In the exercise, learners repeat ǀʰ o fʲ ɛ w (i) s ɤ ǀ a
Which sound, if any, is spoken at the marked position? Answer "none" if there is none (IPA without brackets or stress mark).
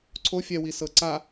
i